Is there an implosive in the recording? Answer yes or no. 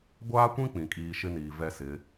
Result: no